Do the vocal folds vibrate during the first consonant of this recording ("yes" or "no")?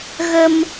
yes